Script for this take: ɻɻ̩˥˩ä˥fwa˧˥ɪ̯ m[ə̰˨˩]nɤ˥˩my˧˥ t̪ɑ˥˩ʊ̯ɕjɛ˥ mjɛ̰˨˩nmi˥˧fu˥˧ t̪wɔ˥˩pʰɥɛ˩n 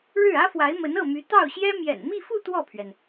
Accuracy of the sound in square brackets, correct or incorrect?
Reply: incorrect